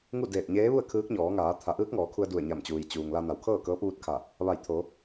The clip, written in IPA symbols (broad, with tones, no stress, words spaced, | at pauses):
ŋu˥˨ deː˧˩t̚ɲeː˧˥ʋu˥˨ə̯ kʰɯː˧˥k̚ɲɔː˩˧ŋaː˩˧ t̪ʰa˩˧ʔɯː˧˥k̚ŋɔː˩˧kʰu˧ə̯ du˧˩ə̯ɲa˧˩mt͡ɕuː˩j t͡ɕuː˩ŋ la˧na˩˧wkʰɤː˥˨kɤː˧˥p̚ ʋu˧˥t̚kʰa˧˩ | ʋa˧˩jt̪ʰo˩˧